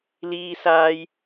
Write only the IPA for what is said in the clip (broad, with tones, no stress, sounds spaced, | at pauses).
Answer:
l iː˥ s aː˥ j